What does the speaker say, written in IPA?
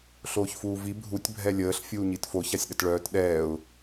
ɬ oː ç f uː v i bʱ u tʲ bʱ ɛ lʲ əː ɬ fʲ uː ɲ i t f o ç a sʲ ɗ ə t ɭ œː t ɗ ɛː ʊ̯

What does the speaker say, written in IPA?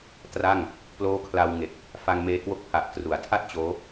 t r a˥˩ ŋ | p l oː˦˥ kʰ l a˧ w ŋ e˨˩ k̚ | f a˧ ŋ m eː˧ k w o˦˥ k̚ pʰ a˨˩ ʔ t r u˩˦ a̯ tʰ a˥˩ t̚ t͡ɕ oː˦˥

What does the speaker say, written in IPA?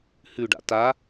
h ʉ ɖ a̰ t a

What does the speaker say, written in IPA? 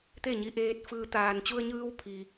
t̪ e˥˨ ɲ i˧ ʔ eː˧ t̚ f ɯː˧ t̪ aː˩ n t͡ɕ u˧ ə̯ ɲ ɯː˧ w pʰ i˩

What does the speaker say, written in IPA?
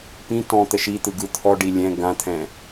p ĩ t ɔ̃ t̪ ə ʃ i t̪ ɯ ɡ ɯ t̪ʰ ɔ ɖ i lʲ ɛ̃ ɡ ã t̪ʰ ɛ̃

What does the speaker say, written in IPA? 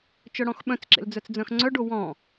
t͡ʃ œ ɽ ɔ̃ x ɓ œ̃ t͡s ǁ ḛ l d͡z œ t͡s d͡z œ̃ x ŋ͡ǀ œ ɖ o w ɔ̃

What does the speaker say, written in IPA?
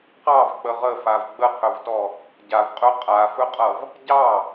q ɑ v k͡p ə ʁ ə f a v ɡ͡b ə qʰ ɵ v t ɔ | ɟ a v qʼ ɵ qʼ a f ɵ qʼ ʌ v | ɟ ɑ

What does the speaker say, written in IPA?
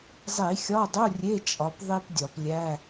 zˤ i˧˩˧ xʲ ɒ˧˥˧ dˤ u˧˥˧ rʲ e˧˥˧ t͡ʃʼ ɒ˩˧˩ p ðˤ i˥ p dʲ ɒ˧˩˧ p lʲ æ˧˥˧

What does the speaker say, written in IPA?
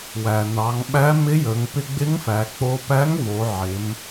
w æ˩ n ɑ˩˧ ŋ ɓ æ˧˥ m ɪ˧˥ j ə˩˧ ŋ p ɪ˧ ɡ͡b ɪ˧˥ ŋ f æ˩˧ k͡p o˧ p æ˧˥ ŋ v o˩˧ ʕ ɪ˩˧ m

